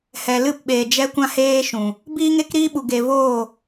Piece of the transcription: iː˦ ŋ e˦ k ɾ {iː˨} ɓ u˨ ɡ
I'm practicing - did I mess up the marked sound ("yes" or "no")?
yes